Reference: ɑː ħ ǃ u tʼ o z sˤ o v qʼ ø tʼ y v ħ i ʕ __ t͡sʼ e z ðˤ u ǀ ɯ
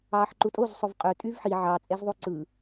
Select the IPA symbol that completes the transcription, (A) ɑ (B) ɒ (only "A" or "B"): A